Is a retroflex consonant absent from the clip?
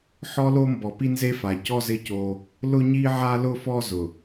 yes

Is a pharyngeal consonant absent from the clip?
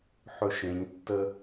no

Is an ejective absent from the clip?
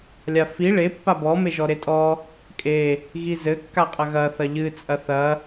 no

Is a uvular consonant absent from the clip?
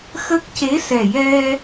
yes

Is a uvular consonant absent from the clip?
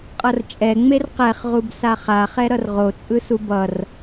no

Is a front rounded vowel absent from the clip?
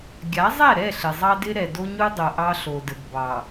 yes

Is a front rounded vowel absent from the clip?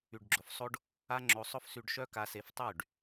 no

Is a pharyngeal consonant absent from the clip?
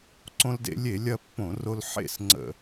no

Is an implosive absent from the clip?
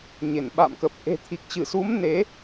no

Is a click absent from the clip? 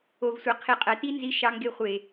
yes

